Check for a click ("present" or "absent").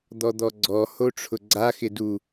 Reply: present